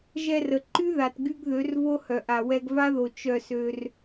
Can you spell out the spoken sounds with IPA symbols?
ʒ ɛ˧ r ə˨ ǃ y˦ ð a˨ t ɡ y˧ ɡ ð ø˨˦ r v o˦ h œ˨ ʔ a˨ w ɛ˧ ɡ v a˦ ð o˨ t͡ʃ œ˧ s ø˧ r

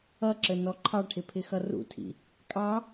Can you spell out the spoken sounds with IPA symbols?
ʌ ǁ ə n ɔ ǃʰ ɑ ʈʰ ɪ pʰ ɪ x ʌ r ṵ tʰ ḭ | kʼ ɑ

